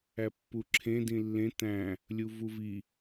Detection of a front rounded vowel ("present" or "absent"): absent